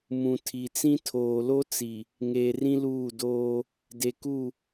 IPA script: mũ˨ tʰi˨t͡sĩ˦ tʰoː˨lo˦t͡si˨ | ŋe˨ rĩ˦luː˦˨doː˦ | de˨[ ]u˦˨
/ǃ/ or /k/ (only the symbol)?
k